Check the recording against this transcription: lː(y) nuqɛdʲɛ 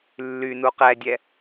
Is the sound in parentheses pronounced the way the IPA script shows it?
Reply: yes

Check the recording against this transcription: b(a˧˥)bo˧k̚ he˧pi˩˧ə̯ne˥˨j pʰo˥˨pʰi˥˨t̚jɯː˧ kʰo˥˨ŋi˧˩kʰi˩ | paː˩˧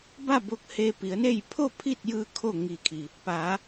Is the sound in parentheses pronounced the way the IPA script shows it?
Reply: no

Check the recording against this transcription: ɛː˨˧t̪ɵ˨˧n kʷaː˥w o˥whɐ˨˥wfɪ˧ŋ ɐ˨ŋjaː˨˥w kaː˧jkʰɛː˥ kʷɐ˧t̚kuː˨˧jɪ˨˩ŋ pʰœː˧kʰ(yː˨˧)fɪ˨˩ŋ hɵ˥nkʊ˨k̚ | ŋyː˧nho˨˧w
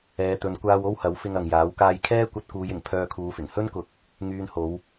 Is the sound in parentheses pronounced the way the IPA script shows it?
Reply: no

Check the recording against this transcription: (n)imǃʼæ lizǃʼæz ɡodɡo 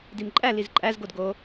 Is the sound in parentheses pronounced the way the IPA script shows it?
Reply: no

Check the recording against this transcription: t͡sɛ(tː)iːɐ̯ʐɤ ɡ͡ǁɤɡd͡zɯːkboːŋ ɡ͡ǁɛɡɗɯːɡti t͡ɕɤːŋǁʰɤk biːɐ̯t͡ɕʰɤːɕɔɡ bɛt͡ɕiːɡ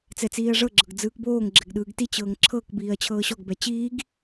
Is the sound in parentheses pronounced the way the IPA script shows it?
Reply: no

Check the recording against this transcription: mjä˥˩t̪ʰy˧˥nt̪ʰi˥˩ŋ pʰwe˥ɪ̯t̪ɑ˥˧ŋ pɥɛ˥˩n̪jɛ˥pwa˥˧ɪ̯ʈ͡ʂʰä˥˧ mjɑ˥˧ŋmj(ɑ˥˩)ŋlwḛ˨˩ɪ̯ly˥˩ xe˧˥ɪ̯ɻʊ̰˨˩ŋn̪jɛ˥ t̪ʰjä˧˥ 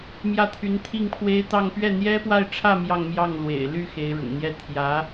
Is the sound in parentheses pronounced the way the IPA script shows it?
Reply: yes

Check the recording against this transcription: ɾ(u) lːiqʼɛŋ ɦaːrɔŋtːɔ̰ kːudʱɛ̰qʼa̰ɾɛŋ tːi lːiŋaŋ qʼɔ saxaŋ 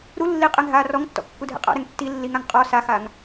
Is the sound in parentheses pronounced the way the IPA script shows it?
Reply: yes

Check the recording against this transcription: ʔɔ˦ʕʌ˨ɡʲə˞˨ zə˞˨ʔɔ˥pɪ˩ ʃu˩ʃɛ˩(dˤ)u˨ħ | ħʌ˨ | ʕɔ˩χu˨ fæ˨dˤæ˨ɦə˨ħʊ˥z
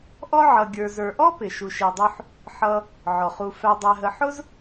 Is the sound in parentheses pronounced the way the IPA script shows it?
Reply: yes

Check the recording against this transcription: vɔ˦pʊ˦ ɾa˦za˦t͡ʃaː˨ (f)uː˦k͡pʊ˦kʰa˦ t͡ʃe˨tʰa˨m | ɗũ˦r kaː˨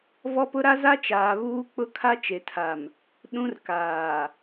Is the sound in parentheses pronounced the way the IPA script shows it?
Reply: no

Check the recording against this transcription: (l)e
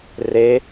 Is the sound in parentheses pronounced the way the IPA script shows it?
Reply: no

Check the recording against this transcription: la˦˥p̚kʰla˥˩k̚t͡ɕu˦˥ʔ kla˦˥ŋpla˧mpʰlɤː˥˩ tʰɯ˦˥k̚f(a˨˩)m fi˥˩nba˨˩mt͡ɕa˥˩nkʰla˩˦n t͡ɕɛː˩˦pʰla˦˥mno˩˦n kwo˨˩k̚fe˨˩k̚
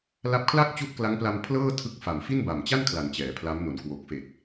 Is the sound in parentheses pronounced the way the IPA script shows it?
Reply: yes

